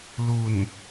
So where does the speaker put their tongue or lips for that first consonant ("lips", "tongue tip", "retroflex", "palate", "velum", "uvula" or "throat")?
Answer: tongue tip